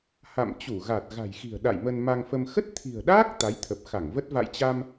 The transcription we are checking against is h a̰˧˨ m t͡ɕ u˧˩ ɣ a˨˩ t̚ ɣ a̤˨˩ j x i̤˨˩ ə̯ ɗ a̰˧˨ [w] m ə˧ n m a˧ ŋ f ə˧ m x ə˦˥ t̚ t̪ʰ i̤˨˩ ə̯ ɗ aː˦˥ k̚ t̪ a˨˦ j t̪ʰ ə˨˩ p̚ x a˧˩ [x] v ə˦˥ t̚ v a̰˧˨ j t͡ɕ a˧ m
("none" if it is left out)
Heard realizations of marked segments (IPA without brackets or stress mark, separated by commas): j, ŋ